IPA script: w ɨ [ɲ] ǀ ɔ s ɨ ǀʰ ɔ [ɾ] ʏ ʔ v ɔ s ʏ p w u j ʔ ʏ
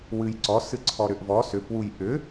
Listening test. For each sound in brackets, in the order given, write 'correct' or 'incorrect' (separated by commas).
incorrect, correct